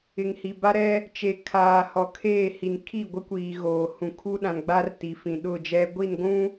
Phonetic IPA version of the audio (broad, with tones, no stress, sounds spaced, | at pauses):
ɪ˨ ŋ h i˨ b a˦ ɾ ɛ˦ | t͡ʃ e˨ kʰ aː˨ h ɔ˨ kʰ eː˦˨ h i˨ n kʰ i˦˨ ɡʷ ɪ˦ kʷ iː˨ ɣ oː˨ h ũ˨ kʰ u˦ ɗ ã˨ n ɡ͡b a˦ r t i˨ f ĩ˨ ɗ ʊ˦˨ d͡ʒ ɛ˦ ɡʷ i˦˨ n ɡʷ ũ˦